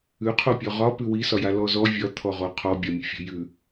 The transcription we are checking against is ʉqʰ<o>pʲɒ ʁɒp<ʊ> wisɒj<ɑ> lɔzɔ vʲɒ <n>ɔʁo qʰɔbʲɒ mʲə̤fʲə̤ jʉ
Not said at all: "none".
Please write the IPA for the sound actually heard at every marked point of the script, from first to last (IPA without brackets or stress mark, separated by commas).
o, ʉ, a, t̪ʰ